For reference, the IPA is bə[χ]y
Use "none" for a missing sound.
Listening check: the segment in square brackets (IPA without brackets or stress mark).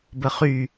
χ